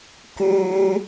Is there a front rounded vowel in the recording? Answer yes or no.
yes